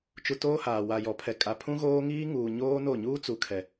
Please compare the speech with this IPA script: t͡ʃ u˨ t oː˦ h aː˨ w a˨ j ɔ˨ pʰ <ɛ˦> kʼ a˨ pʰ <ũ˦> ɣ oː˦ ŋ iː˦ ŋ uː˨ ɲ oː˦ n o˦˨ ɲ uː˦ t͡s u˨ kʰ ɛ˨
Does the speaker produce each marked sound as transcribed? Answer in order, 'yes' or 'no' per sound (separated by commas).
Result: no, yes